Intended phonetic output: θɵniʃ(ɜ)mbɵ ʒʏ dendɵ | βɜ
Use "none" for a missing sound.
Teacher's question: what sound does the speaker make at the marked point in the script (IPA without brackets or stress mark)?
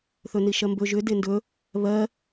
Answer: ɜ